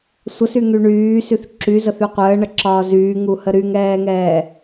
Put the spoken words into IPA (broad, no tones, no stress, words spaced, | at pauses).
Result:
sʷəsyŋy ɳyːsyθ ǁyzəθy qʷəːɳəǁɒː zyːŋuhə ɾyŋɛːŋɛː